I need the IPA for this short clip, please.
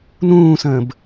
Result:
n ũː s ə̃ː b

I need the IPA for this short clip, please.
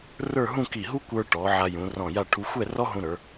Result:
r ə˞˥˧ ɦ ũ˥˧ k i˧˩ ɦ u˥ kʷ ə˞˧ ʈ ɔ˩˧ ʕ a˧ j ũ˩˧ r ɔ̃˧˩ j a˥˧ ʈʰ u˧ xʷ ɛ˥˧ r ɔ˥ ɦ ũ˧ ɾ ə˞˩˧

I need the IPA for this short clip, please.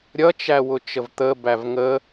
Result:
ɾʲ ʌ t͡ʃ æ w ʊ t͡ʃ ə v t̪ ə b æ v ŋ ə

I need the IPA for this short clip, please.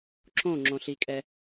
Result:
ǁ õ ŋ͡ǁ õ ɬ i kʼ ɛ

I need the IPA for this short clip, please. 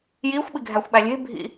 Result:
j iː xʷ ɓ i ɡʱ æ xʷ ɓ æ lʲ e̤ bʱ ḭ

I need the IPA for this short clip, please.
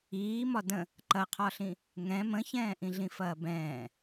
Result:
iː m ɒ d ə̃ | ǃ ɐ qʰ ɒ ɬ ĩ | ŋ ɛ̃ m ə̃ ç ɛ̃ː ʔ ĩ ɮ ĩ f ɐː b ɛ̃ː

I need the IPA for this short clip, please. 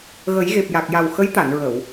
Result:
ɣ ə˨˩˦ j ɣ e˨˩ p̚ j a˨˩ k̚ j a˨˩ w x ə˧˥ j t̪ a˨˩˨ n ɹ ə˨˩˨ w

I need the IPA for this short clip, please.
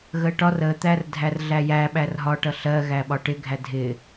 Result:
ɣ ə ʈ ɒ r ə t̪ æ r dʱ æ r ɮ æ j æ ɓ æ r ɦ ɒ ʈ ʌ ɬ ɜ ɣ æ ɓ ɒ ʈ ɪ ɡʱ æ dʱ ɪ

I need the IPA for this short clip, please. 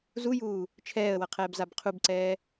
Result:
z u j uː | t͡ʃʰ ɛː ə̯ w ʌ qʰ ɛː b z a b qʰ u b ǀ ɛː

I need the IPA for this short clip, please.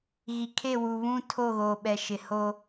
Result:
ɣ i˨ kʰ e˦˨ w u˨ β ũ˦ tʰ o˦˨ ɣ oː˨ ɓ ɛ˨ ʃ ɪ˨ h o˦

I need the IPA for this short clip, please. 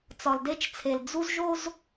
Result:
t͡s ɒ˨ l d e˦ t͡ʃ t͡sʰ e˨ l d͡z u˦ z ʒ o˦ z

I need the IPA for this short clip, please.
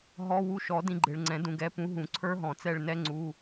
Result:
ɦ ɔ˧˥˧ w u˦˨ ʃ ɔ˨˩˦ d ĩ˦˨ ɡ͡ǃ ɪ˨ ɭ ŋ͡ǀ ɛ̃˨˩˦ d ũ˨ ɡ ɛ˨˥ p ũ˨˥ ɦ ũ˨˩˦ ǀʰ ə˞˦˥ ɦ ɔ̃˨˩˦ t͡s ɛ˦˨ ɭ n ɛ˦˥ ŋ͡ǀ u˧˥˧

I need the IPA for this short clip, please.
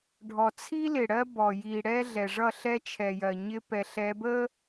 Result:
ɖʱ ɔ˨ t͡sʰ i˦ l ɪ˨ ɽ ɜ˦ b ɔ˨ j i˨ ɽ ɛ˦ ɮ ɛ˨ ʐ ʌ˦˨ ɬ ɛ˦ t͡ʃʰ ɛ˨ j ɜ˨ ɲ ɪ˦ p ɛ˨ ɬ ɛ˨˦ b ə˦

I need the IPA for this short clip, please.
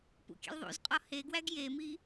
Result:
p ṵ kʲ ḛ l ðˤ ṵ z qʼ ɒ h e ɡ w æ ɡ j e m i

